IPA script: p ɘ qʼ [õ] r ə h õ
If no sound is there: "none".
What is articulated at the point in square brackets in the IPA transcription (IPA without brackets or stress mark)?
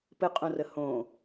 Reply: õ